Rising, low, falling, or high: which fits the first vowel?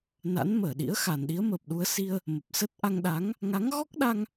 rising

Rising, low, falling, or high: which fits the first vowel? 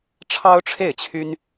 high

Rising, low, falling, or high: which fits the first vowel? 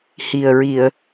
low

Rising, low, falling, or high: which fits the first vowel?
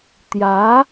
rising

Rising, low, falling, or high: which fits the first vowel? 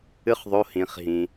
high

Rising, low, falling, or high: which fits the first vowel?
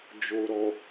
low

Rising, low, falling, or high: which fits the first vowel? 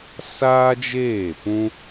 high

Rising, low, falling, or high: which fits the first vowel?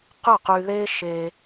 falling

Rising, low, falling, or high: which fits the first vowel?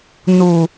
low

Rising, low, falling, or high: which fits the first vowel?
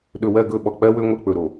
low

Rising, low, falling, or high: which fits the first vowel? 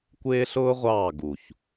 high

